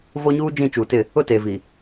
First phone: v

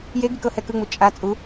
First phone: j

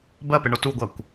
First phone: b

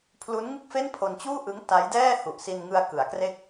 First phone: pʰ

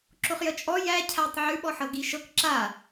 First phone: ǁ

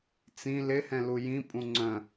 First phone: t͡s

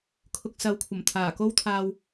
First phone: kʰ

